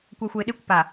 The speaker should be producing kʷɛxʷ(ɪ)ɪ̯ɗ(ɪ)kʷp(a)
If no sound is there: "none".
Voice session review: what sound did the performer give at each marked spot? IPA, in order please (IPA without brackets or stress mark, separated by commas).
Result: ə, ɪ, a